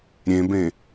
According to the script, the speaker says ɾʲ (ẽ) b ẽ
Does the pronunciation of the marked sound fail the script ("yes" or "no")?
no